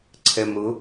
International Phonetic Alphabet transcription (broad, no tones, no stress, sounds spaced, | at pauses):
ǀʰ ɛ m ɾ ʊ